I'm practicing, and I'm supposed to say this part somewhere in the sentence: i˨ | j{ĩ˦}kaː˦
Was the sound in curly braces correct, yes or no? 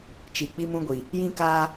yes